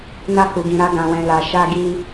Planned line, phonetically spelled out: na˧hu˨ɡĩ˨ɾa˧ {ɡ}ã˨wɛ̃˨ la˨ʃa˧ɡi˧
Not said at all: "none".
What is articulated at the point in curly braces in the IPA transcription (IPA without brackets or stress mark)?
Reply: ɡ